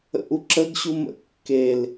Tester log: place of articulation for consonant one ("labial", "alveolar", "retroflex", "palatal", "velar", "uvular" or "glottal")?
glottal